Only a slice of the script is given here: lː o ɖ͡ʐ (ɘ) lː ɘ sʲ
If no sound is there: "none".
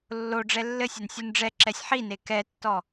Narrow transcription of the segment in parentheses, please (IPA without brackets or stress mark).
ɛ